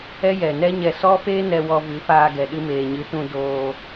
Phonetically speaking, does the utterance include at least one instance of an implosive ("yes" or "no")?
yes